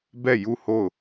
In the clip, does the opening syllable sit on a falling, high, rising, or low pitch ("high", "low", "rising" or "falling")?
falling